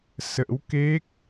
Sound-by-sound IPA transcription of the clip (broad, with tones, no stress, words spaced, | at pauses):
sə̰˧˥wke˦˥k̚